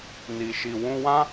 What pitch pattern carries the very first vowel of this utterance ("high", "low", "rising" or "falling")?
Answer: low